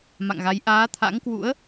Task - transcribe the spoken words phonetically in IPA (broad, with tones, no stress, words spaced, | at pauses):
ma̰˧˨ŋɣa˨˦j ʔaː˨˦t̪ʰa̰˧˥ŋkwṵ˧˥ə̯